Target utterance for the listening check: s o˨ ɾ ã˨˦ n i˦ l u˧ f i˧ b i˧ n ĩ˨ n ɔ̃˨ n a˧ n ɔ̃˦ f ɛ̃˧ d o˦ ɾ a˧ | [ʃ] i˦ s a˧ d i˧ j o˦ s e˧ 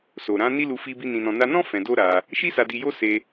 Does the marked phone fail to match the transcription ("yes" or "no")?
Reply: no